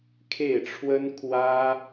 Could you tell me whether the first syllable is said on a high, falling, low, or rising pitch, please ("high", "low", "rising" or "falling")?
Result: falling